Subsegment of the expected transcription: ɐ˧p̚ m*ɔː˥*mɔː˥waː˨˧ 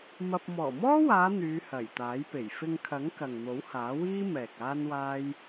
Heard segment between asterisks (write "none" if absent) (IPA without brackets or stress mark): ɔː˨˩